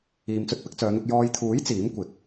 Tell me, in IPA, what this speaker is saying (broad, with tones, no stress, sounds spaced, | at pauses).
iː˨ m t͡s ɵ˧ t̚ p ɪ˨˥ k̚ t͡s œː˨˧ n̪ ʊ˧ k̚ j ɔː˨ j t̪ʰ uː˨˥ j t͡s iː˨˥ m kʷ ɪ˨˥ k̚